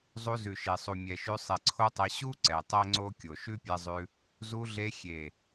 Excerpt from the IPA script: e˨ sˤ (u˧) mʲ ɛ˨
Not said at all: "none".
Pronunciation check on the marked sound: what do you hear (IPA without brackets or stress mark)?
u˨